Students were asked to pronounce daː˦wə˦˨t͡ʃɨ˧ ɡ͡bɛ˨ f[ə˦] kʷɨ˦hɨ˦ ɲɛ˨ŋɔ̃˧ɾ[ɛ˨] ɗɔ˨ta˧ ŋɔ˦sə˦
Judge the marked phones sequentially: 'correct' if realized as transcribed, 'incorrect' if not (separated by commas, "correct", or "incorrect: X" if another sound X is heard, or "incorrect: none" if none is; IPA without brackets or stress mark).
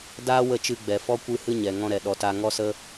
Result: incorrect: ɔ˦, correct